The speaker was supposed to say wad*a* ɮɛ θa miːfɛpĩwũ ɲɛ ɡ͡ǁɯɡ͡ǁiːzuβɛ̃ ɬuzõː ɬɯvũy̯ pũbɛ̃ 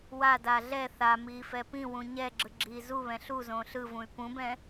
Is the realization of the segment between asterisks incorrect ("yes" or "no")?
no